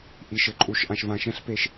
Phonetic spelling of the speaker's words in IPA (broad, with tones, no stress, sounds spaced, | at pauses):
ʔ i˨ ʃ ɘ˨ ǃʼ u˨ ʃ ʔ ã˨ ʃ v ã˨ ʃ ɛ̃˦ ɬ p e˦ ʃ